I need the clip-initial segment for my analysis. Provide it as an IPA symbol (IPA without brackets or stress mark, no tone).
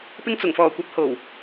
p